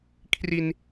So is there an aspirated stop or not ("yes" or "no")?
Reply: yes